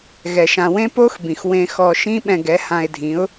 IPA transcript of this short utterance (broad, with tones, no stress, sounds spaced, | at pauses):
ɣ ɛ˧ ʃ ã˧ w ẽ˦ p o˦ x b ĩ˨ x w ẽ˧ x ɔ˧ ʃ ĩ˦ ɓ ɛ̃˧ ɡ ɛ˨˦ h ã˧ ɪ̯ dʱ ĩ˨˦ ʊ̯